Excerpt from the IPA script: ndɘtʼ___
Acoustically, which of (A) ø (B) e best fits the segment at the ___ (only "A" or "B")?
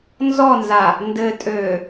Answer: A